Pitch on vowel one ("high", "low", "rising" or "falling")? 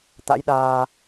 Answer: rising